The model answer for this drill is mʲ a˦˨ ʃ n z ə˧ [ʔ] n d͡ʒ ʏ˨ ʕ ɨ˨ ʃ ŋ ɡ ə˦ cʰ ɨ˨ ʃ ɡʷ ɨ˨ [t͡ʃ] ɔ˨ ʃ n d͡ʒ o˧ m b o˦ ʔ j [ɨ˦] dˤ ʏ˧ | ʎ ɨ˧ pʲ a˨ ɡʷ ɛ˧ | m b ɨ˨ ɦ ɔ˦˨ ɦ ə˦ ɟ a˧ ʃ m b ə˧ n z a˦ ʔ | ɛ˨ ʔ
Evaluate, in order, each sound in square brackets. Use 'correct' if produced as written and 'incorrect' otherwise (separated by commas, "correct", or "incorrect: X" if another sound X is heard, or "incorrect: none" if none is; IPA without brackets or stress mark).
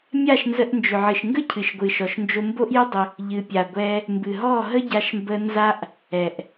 correct, incorrect: ʃ, correct